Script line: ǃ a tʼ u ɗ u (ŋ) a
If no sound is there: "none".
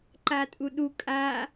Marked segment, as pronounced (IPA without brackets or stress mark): kʼ